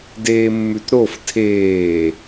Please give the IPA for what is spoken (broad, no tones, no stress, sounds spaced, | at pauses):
d eː mː ʉ t ɾ o f tʰ eː